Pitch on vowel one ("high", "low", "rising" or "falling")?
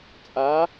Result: rising